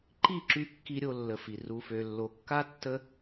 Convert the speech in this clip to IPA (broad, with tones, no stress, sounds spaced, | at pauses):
ǃ i˦˨ ǁ y˧ kː i˧ ɾʲ o˧ lː ə˨ f i˨ r u˨ f ø˨ lː o˨ kː a˦ tː ə˦